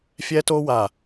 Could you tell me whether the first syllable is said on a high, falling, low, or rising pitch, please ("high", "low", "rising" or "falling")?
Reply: high